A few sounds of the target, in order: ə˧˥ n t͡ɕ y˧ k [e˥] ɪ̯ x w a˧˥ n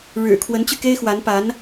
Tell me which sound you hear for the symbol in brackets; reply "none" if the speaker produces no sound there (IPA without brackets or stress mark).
e˥